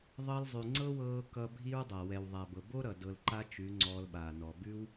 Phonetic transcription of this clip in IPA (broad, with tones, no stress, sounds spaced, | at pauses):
ðˤ ɤ˧ l zˤ ʉ˨ ŋ͡ǀ ɤ˦ w ɤː˧ k ʌ˧ bʱ i˦ ɹ dˤ a˨ w ɛ˨ w ðˤ a˨ b ɤ˨ b o˦ ɾ ʌ˨ d ɤ˧ l ǃ a˦ t͡ʃ ʉ˨˦ ŋ͡ǀ ɔː˧ l ɓ aː˨ n ɔ˨ b ʉ˦ w